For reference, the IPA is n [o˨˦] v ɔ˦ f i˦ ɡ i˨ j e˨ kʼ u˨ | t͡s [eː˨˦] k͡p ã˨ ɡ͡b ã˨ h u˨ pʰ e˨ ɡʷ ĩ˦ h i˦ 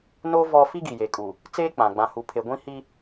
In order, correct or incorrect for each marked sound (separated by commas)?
incorrect, incorrect